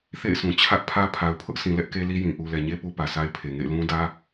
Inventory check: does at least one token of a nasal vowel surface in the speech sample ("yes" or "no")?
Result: yes